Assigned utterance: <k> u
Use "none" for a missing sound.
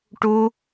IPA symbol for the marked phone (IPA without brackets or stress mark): ʈ